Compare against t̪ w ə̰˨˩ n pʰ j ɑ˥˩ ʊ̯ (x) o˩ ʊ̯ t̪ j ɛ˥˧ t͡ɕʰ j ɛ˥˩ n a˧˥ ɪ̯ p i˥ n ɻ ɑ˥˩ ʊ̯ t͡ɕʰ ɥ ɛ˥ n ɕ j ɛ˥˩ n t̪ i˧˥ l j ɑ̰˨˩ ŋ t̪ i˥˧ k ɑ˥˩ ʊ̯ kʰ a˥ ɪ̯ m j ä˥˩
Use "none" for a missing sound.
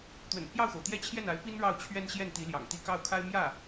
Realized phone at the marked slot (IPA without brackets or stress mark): x